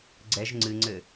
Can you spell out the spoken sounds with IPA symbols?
ɡ͡ǀ ɛ ʒ ŋ͡ǀ ɨ ŋ͡ǀ ɘ

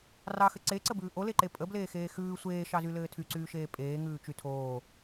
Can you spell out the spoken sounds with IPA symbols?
r ɑ x ɘ ǀ e ǀ ə b ʉː ʔ o l e ǃ e pʼ ə b l eː x eː x ʉː sʷ eː ʃ ɑ z y l ɘː tʰ y ǀ yː ʃ eː pʼ eː ŋ ʉː t͡ʃ y tʰ oː

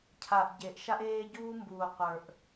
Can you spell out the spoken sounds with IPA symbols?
cʰ a˨ ʔ ɟ e˨ ʔ ʃ a˦ ʔ eː˦ ɟ uː˦ m b uː˨ qʷ ə˞˨ ʔ

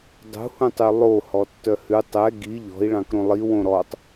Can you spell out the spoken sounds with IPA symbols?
dˤ ṳ h ũ tˤ y lˠ o h ɔ tː œ h ʉ tˤ ɛ ɡ i ʎ ɔ̤ i̯ ɭ ɑ̃ k ɾ õ lˠ i w õ ɾ ɔ tˤ

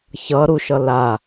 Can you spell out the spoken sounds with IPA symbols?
ç ʌ ɾ u ʃ ʌ l a

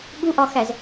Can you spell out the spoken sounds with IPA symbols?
ɠ u ʔ ɒ x æ z

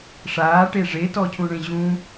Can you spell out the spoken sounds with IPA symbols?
ʂ aː ʈ e ʐ e t ɔ cʰ ũ ɳ ẽ ʑ ũ

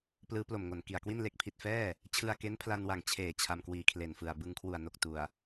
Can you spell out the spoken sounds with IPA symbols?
p l ɯː˦˥ p l o˨˩ m ŋ o˨˩ n k i˨˩ a̯ k w i˥˩ n l e˦˥ k̚ pʰ i˨˩ t̚ f ɛː˥˩ | t͡ɕʰ ɯ˧ a̯ k e˦˥ n pʰ l a˧ n w a˨˩ ŋ t͡ɕʰ eː˨˩ t͡ɕʰ a˧ m k w iː˨˩ kʰ l e˨˩ n f ɯ˨˩ a̯ b ɯ˧ ŋ kʰ w u˨˩ a̯ n o˨˩ k̚ t u˨˩ a̯

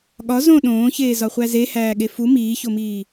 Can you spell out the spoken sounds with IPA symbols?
ɠ ɒ z õ ɗ õː ç eː z ɒ χʷ æ z e h æː ɠ e f u m iː ç o m iː

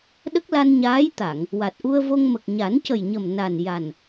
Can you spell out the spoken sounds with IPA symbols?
ɗ ə˦˥ k̚ l a˧ n ɲ aː˧˥ j t̪ a˨˩˨ ŋ | w a˨˩ t̚ ʔ u˧ ə̯ v o˧ ŋ m ə˨˩ k̚ ɲ a˨˩˦ n c ə˨˩ j ɲ ə˨˩ m n a˨˩ n j a˨˩ n

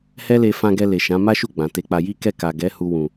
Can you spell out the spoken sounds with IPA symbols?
h ɛ˦ l e˧ f ã˧ ɡ ɛ˧ l e˨ ʃ ã˨˦ m a˦ ʃ u˦˨ ɡ͡b ã˨ t e˧ k͡p a˧ j i˦ k ɛ˦˨ k a˨ ɡ ɛ˨˦ h u˧ w ũ˨

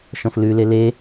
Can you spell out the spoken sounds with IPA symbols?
ʃ ɔ̃ f l ʉ l e l e

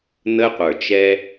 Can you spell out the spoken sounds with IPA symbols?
n̪ ə˦ qʷ ə˞˨ t͡ʃ ɛ˦

